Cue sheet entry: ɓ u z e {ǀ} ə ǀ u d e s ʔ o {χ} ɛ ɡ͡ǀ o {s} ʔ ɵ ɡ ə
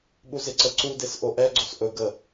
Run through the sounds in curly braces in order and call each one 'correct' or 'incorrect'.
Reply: correct, incorrect, correct

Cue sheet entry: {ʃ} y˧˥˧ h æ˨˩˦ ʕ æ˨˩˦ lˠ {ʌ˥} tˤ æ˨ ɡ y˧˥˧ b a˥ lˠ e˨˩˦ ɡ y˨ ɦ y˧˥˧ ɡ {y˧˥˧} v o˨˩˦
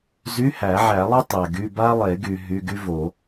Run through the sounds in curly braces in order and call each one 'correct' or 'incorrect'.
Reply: incorrect, correct, incorrect

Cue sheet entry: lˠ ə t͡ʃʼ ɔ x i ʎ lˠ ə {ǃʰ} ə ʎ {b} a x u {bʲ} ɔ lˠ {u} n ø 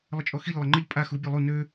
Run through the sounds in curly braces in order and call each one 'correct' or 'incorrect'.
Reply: incorrect, incorrect, correct, correct

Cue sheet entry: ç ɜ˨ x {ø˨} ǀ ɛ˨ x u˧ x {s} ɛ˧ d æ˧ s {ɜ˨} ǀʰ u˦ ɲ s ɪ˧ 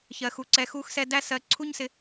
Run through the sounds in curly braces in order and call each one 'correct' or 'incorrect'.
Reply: incorrect, correct, correct

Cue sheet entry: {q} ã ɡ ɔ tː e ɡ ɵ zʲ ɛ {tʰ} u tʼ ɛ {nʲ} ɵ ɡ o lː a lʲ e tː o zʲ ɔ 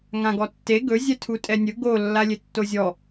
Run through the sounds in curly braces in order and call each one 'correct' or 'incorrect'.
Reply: incorrect, correct, correct

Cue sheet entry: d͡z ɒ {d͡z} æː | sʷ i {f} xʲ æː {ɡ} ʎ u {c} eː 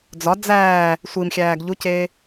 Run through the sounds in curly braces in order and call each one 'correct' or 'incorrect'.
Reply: correct, incorrect, correct, correct

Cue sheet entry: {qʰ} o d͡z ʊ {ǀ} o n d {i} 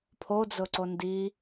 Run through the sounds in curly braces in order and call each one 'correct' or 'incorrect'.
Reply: incorrect, correct, correct

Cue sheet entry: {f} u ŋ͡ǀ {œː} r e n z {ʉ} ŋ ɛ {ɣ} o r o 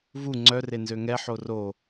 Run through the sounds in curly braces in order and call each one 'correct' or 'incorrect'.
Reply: incorrect, incorrect, incorrect, incorrect

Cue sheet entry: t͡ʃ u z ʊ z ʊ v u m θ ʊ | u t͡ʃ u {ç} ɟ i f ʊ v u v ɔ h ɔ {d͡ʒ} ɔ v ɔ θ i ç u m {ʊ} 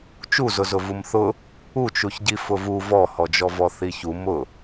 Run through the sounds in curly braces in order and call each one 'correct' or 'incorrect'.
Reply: correct, correct, correct

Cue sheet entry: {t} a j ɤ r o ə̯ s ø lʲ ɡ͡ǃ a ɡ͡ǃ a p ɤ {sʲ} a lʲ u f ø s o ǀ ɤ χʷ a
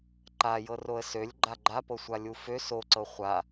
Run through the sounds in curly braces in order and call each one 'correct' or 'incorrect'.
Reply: incorrect, incorrect

